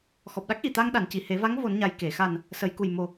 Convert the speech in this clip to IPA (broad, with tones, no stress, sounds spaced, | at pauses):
x ɔ˨˩ p̚ ɗ a˦˥ k̚ ʔ i˨˩˨ t̪ a˧ ŋ ɗ a˨˩˨ n c i˨˩˨ h e˨˩˦ v a˧˥ ŋ v o˨˩˦ n ɲ a˨˩ j k e˨˩˨ x a˨˩ n | s ə˨˩˦ j k u˨˩ j m o˨˩